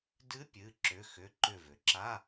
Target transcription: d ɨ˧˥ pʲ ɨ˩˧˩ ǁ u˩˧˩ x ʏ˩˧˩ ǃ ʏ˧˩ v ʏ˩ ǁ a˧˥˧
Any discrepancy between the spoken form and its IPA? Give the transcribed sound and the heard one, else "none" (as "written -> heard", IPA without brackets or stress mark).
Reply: u˩˧˩ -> ʏ˩˧˩